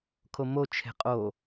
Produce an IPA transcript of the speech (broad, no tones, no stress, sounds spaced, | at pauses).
kʰ o m o t͡ʃʰ e̤ qʼ o